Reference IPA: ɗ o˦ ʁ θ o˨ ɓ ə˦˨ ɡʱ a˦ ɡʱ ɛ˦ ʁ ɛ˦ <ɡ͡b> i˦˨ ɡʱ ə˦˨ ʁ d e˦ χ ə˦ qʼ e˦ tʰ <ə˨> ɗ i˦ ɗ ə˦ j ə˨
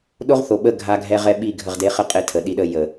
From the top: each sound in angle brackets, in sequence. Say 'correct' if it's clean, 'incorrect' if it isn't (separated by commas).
incorrect, correct